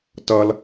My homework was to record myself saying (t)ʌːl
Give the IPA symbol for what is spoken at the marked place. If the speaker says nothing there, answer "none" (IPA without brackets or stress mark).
t